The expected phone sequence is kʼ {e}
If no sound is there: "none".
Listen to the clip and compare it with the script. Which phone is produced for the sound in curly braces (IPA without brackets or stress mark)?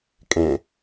ẽ